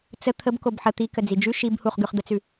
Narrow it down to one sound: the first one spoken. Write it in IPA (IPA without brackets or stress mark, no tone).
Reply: t͡s